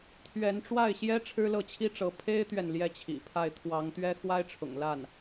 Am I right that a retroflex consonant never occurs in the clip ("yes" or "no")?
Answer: no